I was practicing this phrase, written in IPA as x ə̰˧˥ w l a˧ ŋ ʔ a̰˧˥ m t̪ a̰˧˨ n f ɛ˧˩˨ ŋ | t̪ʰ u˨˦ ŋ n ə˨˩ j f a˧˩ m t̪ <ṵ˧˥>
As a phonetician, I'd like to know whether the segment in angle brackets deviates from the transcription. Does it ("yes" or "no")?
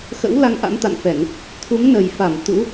no